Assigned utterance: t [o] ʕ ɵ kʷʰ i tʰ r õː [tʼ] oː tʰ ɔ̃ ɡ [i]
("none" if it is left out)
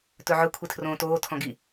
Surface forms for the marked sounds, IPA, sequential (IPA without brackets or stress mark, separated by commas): ɵ, t, i